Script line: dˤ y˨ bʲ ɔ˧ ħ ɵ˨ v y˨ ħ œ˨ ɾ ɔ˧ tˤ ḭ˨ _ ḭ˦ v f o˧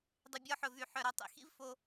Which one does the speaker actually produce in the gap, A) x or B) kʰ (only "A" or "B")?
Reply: A